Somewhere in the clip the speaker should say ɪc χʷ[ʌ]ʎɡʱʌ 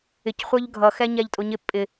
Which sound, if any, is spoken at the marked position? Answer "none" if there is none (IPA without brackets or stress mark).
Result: ə˞